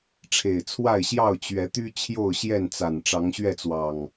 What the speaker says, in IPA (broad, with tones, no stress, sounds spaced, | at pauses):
ʈ͡ʂʰ e˨˩ ɪ̯ t͡sʰ w a˥˨ ɪ̯ ɕ j ɑ˥˨ ʊ̯ t͡ɕ ɥ ɛ˨˦ t̪ y˦ t͡ɕʰ j o˥˨ ʊ̯ ɕ j ɛ˥˨ n t͡s a˨˩ n ʈ͡ʂ ɑ˨˦ ŋ ɕ ɥ ɛ˥˨ t͡s w ɑ˨˩ ŋ